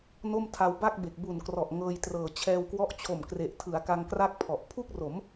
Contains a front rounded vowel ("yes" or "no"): no